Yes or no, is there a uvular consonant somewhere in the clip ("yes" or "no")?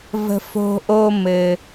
no